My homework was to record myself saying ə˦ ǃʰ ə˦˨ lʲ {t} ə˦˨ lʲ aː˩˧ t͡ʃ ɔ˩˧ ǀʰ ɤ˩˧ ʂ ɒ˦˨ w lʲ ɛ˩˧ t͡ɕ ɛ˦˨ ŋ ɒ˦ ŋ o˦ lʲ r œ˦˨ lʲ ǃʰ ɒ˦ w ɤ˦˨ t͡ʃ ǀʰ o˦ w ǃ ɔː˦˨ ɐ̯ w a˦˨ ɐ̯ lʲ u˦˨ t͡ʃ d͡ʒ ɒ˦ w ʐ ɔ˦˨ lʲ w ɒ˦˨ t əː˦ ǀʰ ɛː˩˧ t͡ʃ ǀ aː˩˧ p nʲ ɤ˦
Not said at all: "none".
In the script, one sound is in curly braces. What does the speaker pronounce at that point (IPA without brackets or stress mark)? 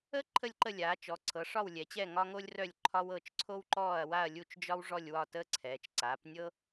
ǃ